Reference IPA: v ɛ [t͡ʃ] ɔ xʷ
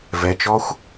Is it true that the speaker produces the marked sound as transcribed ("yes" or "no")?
yes